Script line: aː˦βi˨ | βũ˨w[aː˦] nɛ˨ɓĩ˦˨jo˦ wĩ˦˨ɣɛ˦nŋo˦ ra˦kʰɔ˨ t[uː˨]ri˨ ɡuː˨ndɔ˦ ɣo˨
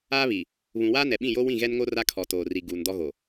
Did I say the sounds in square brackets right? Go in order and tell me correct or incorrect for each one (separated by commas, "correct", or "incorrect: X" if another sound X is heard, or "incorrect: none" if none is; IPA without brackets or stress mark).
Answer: correct, incorrect: oː˨